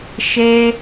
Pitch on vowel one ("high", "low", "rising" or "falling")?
high